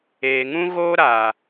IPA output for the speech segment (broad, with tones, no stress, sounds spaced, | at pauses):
eː˨ ŋ ũ˦ ɣ oː˦ ɾ aː˨